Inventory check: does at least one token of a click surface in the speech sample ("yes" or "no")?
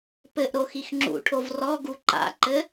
yes